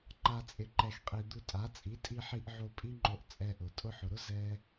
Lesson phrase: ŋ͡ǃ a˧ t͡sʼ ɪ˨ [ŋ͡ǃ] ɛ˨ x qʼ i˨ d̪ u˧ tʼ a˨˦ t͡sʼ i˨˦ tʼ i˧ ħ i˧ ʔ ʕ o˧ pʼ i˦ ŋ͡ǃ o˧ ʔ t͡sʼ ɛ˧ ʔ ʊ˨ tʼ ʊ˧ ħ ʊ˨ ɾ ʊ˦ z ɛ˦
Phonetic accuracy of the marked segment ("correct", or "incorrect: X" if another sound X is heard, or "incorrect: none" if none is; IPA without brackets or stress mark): incorrect: ǃ